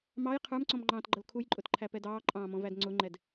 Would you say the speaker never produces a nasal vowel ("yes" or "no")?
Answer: no